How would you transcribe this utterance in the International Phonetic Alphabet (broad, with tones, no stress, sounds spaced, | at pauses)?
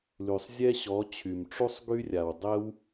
l y˨ sˤ zʲ ɛ˦ ɕ ɔ˨˦ t͡ɕʰ y˨ m ʈ͡ʂ u˦ sˤ ɡ y˦ rʲ a˨ w dˤ ɛ˦ w